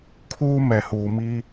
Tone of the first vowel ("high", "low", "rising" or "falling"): high